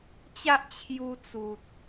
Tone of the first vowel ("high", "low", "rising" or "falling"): high